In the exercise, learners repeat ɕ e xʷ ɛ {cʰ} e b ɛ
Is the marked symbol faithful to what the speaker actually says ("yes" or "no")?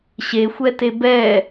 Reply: no